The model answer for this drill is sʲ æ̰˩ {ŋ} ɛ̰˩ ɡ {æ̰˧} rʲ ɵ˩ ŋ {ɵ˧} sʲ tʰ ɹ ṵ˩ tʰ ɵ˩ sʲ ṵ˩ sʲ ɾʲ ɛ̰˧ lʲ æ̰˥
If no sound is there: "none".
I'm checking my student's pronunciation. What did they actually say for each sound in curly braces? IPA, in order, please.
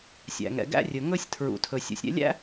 ŋ, æ̰˧, ɵ˥

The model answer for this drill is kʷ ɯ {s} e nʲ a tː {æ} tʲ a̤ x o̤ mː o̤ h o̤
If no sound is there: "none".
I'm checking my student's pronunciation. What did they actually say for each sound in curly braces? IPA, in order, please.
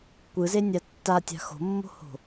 z, a

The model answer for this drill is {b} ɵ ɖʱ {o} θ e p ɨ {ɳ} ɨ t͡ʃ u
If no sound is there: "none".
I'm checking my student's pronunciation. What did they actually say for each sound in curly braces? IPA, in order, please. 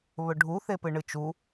β, u, ɳ

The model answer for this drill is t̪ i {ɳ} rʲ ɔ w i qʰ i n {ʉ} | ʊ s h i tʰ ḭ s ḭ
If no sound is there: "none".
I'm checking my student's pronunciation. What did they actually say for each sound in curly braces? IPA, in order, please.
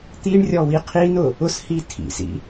ɳ, ʊ

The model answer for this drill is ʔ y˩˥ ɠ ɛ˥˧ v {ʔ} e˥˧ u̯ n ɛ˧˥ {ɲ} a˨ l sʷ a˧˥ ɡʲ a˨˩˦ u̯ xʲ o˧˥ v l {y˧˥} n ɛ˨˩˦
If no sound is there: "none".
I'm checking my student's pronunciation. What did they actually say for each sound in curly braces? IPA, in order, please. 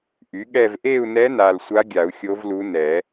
ʔ, n, u˧˥

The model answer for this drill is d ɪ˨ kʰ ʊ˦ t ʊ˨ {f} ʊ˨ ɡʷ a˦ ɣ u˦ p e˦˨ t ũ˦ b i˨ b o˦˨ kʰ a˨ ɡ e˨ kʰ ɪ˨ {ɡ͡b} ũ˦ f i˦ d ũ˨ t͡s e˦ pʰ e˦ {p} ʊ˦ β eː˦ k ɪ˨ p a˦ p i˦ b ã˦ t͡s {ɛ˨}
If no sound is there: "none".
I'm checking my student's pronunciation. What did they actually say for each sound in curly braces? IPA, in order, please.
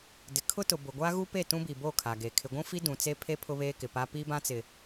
b, ɡʷ, pʰ, ɪ˨

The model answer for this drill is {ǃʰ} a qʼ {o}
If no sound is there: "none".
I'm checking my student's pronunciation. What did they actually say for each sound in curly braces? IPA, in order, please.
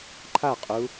ǃʰ, u

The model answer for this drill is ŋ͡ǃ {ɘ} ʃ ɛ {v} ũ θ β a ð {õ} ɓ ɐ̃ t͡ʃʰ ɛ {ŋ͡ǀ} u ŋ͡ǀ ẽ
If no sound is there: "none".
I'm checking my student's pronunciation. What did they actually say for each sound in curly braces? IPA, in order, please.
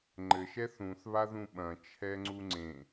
ɘ, θ, ũ, ŋ͡ǀ

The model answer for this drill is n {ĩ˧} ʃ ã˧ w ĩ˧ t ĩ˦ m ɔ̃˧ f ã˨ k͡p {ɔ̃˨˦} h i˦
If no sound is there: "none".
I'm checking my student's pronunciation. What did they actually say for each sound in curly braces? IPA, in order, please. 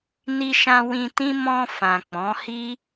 i˧, ɔ̃˨˦

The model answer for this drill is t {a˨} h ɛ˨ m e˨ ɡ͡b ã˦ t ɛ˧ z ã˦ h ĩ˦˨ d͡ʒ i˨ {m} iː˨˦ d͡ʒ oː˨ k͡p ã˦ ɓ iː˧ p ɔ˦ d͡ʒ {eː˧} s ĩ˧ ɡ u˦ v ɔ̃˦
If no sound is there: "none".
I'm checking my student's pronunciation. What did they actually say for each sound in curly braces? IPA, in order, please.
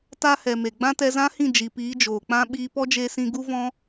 a˦, p, eː˧

